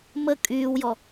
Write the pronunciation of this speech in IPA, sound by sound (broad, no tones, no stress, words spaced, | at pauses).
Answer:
mə kʼyːwjɔ